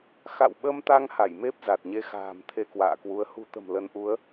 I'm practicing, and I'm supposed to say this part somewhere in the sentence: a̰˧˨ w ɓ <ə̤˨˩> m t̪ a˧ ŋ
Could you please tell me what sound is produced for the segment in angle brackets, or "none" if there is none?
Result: ə˧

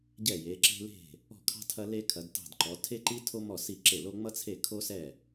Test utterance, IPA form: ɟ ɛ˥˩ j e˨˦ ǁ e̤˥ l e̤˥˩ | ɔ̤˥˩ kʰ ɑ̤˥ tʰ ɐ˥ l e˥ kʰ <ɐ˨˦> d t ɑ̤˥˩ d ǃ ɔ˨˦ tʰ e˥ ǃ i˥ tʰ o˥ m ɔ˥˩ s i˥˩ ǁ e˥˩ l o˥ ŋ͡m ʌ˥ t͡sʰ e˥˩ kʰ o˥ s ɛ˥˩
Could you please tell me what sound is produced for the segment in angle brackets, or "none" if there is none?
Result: ɐ˨˦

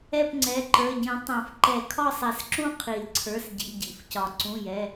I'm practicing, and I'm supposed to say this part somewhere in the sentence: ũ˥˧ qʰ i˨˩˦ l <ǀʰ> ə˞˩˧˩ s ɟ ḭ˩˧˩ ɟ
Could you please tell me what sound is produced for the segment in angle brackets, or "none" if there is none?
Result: ǀʰ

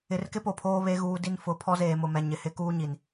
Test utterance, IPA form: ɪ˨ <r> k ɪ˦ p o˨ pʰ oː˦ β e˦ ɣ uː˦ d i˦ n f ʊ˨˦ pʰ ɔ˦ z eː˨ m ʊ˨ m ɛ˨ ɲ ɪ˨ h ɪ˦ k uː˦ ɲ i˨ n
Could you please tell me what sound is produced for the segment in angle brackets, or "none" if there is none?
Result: r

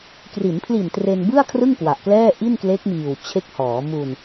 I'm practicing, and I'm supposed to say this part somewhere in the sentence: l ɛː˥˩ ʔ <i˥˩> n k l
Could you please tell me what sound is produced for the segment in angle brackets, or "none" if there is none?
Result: i˥˩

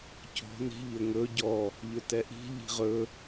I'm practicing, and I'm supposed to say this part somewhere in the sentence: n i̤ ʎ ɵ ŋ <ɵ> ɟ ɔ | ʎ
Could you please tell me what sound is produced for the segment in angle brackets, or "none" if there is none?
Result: ɵ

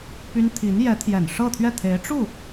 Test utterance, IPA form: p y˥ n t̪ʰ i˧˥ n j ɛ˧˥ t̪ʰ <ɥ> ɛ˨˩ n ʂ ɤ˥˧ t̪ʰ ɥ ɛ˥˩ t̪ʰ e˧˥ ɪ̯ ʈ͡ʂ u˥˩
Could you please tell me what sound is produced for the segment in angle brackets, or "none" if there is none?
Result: j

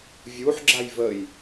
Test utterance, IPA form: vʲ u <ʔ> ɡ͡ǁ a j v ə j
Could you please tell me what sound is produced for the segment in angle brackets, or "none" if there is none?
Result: ħ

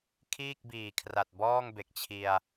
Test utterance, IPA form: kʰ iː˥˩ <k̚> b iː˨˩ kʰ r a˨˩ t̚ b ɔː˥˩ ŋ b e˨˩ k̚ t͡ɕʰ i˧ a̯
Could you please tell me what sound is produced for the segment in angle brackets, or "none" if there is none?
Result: k̚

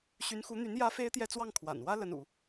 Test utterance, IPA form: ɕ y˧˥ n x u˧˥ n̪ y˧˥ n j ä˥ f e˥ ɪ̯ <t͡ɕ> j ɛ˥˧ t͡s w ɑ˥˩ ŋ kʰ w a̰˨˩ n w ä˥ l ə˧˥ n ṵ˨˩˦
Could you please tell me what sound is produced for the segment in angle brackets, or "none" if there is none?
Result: t̪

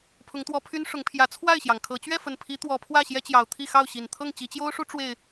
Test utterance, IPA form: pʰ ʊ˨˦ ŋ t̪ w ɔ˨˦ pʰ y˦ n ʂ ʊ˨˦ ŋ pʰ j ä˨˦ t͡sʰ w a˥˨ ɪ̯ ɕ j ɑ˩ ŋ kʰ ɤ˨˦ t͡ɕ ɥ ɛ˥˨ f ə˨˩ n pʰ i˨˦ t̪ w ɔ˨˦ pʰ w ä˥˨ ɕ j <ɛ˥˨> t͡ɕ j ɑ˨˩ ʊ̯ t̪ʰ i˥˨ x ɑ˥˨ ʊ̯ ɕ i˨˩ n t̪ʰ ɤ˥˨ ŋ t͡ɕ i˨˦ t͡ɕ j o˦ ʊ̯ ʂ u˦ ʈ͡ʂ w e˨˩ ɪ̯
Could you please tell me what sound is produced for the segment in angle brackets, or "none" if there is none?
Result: ɛ˦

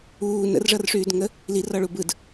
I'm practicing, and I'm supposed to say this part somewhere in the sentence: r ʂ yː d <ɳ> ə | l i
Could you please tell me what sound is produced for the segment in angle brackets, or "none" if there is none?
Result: ŋ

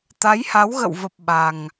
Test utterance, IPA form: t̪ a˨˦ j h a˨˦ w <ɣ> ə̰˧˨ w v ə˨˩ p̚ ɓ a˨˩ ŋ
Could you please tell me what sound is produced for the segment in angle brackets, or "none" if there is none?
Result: ɣ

